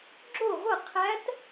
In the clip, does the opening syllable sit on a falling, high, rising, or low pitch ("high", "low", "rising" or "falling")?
falling